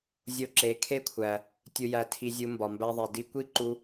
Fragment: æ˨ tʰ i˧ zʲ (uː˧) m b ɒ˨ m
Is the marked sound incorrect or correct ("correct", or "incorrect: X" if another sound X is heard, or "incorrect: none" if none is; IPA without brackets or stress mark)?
incorrect: u˧